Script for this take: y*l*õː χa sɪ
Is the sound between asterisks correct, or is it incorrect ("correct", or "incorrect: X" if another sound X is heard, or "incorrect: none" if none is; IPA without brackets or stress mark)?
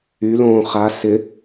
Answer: correct